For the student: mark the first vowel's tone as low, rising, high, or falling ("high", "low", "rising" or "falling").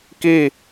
falling